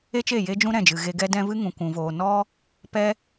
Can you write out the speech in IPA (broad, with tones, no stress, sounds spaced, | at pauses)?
e˦ t͡ʃ e˦˨ j e˦ d͡ʒ ũ˦ ɾ ɛ̃˦˨ d͡ʒ ɨ˨ ɣ e˧ ɡ ɛ˦ d ɛ̃˦ v ɨ˦ ŋ ũ˨ kʷ ũ˨ v oː˨ n ɔ˦ | p ɛ˦